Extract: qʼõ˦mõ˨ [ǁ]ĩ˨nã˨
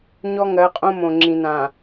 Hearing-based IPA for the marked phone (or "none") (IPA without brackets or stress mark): ŋ͡ǁ